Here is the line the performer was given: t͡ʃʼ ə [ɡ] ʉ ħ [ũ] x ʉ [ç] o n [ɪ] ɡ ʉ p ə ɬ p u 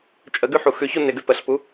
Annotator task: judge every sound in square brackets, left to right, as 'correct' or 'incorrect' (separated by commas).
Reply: correct, incorrect, correct, correct